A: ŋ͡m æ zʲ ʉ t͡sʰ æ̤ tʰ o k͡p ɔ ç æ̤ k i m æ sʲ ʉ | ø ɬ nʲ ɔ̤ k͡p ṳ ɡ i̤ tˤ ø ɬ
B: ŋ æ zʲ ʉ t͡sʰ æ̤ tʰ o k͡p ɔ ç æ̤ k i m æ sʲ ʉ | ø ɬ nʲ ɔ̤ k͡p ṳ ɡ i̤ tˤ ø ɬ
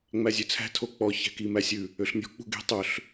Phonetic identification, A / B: A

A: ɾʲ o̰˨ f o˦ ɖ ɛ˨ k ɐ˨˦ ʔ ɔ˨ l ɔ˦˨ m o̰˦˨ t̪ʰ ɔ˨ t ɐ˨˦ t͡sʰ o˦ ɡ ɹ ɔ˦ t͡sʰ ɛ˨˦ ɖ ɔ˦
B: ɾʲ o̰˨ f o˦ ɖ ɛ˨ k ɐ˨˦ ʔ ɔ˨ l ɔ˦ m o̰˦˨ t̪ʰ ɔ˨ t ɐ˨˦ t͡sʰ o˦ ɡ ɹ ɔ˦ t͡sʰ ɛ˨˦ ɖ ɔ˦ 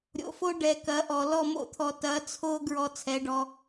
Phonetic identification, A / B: A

